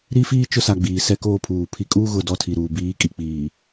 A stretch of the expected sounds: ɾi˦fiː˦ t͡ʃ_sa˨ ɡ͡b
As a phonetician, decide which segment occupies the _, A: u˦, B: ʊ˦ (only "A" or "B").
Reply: B